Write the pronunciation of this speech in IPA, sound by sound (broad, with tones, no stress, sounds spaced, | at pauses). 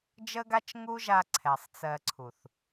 d͡ʒ ə˦ ɡ a˦ t͡ʃ ŋ u˦ ʒ a˧ ǀʰ ɛ˨ sˤ t͡s ɜ˧ ǀʰ u˨ θ